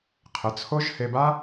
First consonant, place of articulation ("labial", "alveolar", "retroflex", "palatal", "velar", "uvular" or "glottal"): uvular